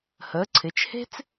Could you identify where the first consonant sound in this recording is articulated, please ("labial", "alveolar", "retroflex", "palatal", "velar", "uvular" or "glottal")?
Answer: glottal